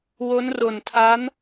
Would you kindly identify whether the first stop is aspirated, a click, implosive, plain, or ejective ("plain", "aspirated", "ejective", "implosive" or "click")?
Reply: aspirated